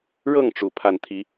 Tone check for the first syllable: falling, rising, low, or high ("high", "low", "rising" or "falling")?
falling